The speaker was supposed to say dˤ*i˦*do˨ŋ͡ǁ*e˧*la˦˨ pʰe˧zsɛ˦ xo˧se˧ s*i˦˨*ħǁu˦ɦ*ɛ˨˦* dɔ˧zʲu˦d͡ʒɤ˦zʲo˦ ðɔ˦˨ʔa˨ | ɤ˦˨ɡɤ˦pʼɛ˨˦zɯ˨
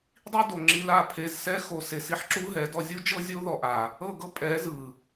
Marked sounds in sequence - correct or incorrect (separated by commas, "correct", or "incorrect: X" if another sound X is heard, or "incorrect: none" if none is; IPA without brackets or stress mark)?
correct, incorrect: i˧, correct, correct